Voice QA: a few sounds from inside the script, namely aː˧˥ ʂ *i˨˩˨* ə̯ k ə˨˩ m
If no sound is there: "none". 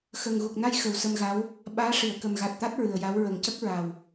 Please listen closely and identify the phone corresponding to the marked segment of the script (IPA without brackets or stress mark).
i˨˩˨